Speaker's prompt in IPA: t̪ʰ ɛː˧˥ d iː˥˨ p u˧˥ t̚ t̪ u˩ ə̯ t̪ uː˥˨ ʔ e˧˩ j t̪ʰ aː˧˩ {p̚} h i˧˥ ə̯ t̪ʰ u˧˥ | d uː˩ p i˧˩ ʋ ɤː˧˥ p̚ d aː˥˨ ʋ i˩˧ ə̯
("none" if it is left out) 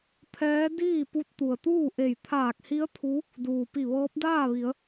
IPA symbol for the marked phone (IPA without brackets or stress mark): k̚